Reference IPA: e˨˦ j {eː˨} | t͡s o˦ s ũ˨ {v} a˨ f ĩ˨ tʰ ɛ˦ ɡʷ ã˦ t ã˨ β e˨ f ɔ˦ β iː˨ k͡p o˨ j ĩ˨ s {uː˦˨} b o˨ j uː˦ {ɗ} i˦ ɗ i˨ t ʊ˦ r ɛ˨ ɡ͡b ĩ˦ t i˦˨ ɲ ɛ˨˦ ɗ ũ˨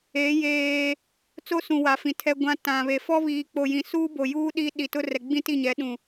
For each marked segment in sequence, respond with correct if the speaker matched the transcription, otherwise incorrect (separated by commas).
incorrect, incorrect, incorrect, correct